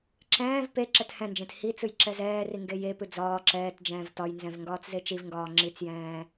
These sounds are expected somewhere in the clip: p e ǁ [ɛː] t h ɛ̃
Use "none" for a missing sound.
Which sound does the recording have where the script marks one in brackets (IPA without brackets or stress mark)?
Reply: ɛ